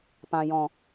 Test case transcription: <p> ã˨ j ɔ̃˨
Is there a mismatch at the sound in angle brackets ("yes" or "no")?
no